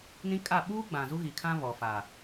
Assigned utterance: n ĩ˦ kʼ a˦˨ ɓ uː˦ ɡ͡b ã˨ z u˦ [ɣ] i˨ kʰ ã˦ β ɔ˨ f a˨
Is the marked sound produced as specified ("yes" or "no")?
yes